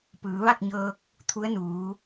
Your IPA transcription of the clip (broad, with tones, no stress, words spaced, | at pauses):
pɯː˩˧ʋa˥˨k̚ɲɤː˧k̚ | t̪ʰu˧˥ə̯nuː˩˧